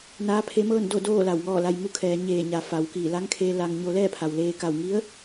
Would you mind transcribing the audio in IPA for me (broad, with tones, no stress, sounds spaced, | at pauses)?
n aː˧˥ pʰ e˧˥ m ɤː˥˨ n d o˥˨ d oː˥˨ l a˧˩ w ŋ ɔː˥˨ l a˧ j m u˧˥ kʰ ɛː˩˧ ɲ eː˧˩ ɲ a˩˧ f a˩ w k iː˧˩ l a˧˥ ŋ kʰ eː˧ l a˧ ŋ ɲ o˧ l ɛː˥˨ pʰ a˩ w l eː˧ k a˧˩ w ŋ i˧˥ ə̯